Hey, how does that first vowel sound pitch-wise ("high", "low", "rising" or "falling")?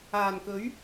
low